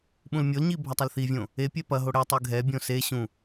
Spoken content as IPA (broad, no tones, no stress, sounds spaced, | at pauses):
ɓ ũ l mʲ o l ɲ i bʱ ɐ tˤ ɐ l θ i vʲ õ | e pʲ ɛ p ɐ ɦ o ɽ ɛ tˤ ɨ ɡʱ ɛ bʲ õ s e ɕ ũ